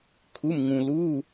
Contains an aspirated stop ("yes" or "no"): yes